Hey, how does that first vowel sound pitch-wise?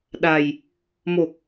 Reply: low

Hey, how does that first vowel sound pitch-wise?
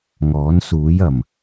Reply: rising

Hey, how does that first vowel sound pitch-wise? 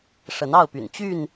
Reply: rising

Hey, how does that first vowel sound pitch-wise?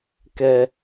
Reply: low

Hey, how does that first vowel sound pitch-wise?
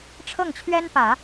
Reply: falling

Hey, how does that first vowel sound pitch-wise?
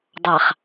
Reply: low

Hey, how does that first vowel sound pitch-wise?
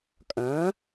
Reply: rising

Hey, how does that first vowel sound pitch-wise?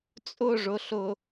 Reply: falling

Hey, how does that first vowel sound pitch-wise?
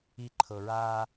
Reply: low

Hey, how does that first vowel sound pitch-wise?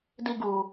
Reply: high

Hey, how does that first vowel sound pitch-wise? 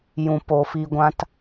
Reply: low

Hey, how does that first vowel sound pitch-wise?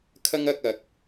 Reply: high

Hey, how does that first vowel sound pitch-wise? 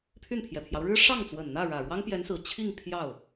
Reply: falling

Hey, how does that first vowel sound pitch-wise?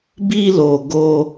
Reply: high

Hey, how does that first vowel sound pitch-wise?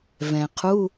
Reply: low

